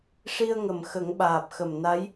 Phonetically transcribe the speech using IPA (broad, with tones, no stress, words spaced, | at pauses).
ʂi˧ə̯ŋə˨˩˨m xə˨˩˦ŋɓaː˨˩p̚xə˨˩m na˧˥j